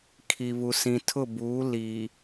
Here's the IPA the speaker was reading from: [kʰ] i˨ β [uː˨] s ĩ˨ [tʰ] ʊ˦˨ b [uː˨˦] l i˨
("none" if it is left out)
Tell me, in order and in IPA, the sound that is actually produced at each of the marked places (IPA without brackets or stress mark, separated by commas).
kʰ, u˨, tʰ, uː˨˦